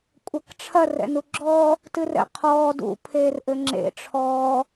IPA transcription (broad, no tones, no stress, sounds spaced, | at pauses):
kʷʼ ɐ k ʈ͡ʂʰ ɐ r ɛ̰ n u ɡ͡ǁ ɔː | t ɨ r ɛ̰ qʰ ɔː d ṵ pʰ eː r ʔ ɘ ŋ͡ǁ ḛ ʈ͡ʂʰ ɔː